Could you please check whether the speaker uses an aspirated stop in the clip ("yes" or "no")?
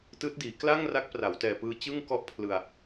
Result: yes